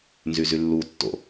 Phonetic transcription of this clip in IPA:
n z y z y lː u tː o̰

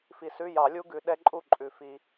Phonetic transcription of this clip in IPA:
f i˨ s ʉ˧˥˧ j ɑ˨˩˦ lʲ u˦˥ ɡ ʉ˨ ɗ ɛ˦˥ ǃʼ u˥˨ ǃʼ ʉ˨˩˦ f i˨

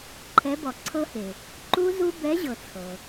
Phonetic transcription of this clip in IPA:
ǃʰ ɛ˨˥ b ɔ˩ ǀʰ ɤ˦˥ h e˩ | ǃ u˦˥ z u˦˥ b ɛ˨˥ ʑ ɤ˩ t͡sʰ ɤ˩

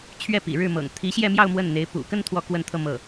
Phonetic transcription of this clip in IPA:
t͡ɕʰ ɥ ɛ˥˩ p ḭ˨˩ ɻ ɻ̩˥˩ m ɤ̰˨˩ ŋ t̪ʰ i˧˥ ɕ j ɛ˥˧ m j ɑ˥˧ ʊ̯ m w ə˥˩ n n̪ e˧˥ ɪ̯ p ṵ˨˩ k ə˥˧ n t̪ʰ w ɔ˥˧ k w ə˥˧ n t̪ʰ ɤ˥˧ m ɤ˥˩

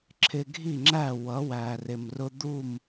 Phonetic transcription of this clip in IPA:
ǁʰ ɪ˧ ɡʱ i˥˩ ŋ͡ǁ æ˥˩ w ʌ˩˥ w æ˩ r ɪ˩ m r ʊ˧ d̪ u˥˩ m

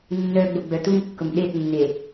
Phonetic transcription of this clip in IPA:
nː œ ɡ͡b o ɡ͡b œ t u m kː ʊ m ɗ e t nː e

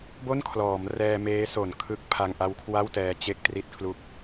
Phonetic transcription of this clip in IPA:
b o˥˩ n kʰ l ɔː˩˦ m r ɛː˧ m eː˦˥ s o˨˩ n kʰ ɯ˦˥ k̚ pʰ a˧ ŋ ʔ a˦˥ w kʰ w a˥˩ w t ɛː˧ t͡ɕ e˥˩ k̚ t r i˦˥ t̚ kʰ l u˦˥ k̚

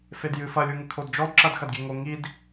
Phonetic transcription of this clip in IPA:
f e d j ɨ f ɐ lʲ u ŋ ɘ kʰ o d d͡ʒ ɔ d ǁ ɐ d x ɐ d ɡʲ ɛ ŋ o ŋ i d

